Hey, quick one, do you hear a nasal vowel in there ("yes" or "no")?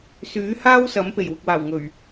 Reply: no